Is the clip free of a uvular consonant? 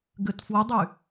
yes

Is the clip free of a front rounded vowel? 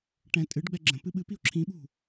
yes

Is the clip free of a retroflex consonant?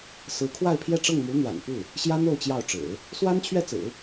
no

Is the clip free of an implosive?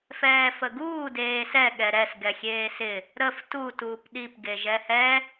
no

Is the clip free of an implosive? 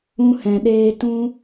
no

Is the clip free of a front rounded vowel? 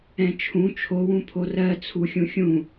yes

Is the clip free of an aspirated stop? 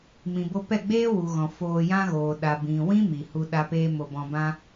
yes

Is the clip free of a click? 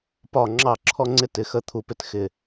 no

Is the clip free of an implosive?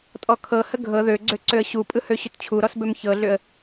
yes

